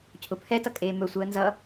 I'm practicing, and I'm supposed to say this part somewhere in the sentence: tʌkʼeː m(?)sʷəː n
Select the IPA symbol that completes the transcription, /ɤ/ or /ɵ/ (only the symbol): ɵ